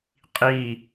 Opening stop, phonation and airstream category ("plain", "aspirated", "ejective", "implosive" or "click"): ejective